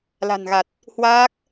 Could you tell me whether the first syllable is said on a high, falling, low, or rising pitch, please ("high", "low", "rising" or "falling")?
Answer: low